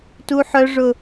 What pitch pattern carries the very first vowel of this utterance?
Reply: high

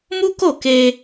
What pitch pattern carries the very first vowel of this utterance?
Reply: high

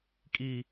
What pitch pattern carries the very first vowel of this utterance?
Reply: high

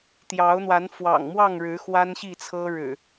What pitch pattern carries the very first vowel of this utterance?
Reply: rising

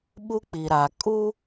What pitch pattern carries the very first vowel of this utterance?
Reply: high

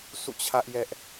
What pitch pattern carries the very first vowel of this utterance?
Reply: falling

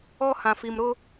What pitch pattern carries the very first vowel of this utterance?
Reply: high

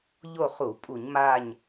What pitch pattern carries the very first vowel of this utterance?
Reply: falling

